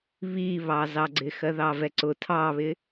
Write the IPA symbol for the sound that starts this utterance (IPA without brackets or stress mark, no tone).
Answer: β